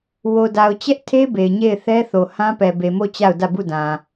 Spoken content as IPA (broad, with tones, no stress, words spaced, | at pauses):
wo˨da˨ʊ̯t͡ɕɛ˦ʔtʰe˦ be˨ɪ̯ɲe˦˨ɪ̯ θɛ˦θo˨ hã˦pɛ˨be˨mo˦˨ t͡ɕa˦˨ʊ̯dä˦˨bu˦˨dã˨